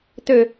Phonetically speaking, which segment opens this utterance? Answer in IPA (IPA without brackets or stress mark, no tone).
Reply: t̪